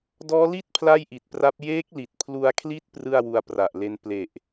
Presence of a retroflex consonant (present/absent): absent